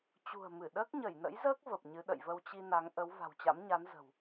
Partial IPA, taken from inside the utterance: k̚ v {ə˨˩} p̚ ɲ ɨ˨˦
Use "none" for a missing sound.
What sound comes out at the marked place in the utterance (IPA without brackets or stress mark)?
ə˨˩